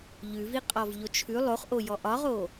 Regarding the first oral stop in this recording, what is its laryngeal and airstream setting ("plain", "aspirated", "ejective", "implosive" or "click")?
ejective